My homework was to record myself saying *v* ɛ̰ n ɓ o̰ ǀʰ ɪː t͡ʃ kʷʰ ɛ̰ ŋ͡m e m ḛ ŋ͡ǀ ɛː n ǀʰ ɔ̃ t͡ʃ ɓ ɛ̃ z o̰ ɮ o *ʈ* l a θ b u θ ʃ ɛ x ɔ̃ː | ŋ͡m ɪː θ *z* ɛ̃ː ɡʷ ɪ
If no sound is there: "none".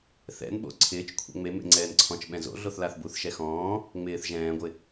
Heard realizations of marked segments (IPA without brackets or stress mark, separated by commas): θ, θ, ʒ